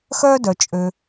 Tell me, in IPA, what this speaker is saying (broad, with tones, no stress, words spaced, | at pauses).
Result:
xœː˥dœ˩ t͡ʃʼø˩